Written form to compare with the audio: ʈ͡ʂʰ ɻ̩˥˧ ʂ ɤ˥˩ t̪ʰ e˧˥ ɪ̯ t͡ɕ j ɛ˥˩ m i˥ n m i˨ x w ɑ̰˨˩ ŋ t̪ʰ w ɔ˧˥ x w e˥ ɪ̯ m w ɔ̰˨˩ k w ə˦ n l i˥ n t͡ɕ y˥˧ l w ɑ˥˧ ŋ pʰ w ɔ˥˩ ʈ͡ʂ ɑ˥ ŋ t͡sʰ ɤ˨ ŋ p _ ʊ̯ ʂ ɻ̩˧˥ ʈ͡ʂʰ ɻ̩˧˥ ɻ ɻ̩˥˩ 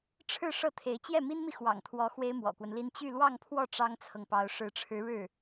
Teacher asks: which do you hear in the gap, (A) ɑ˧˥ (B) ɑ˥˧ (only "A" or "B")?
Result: A